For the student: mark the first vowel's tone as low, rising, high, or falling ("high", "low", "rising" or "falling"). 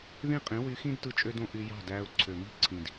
falling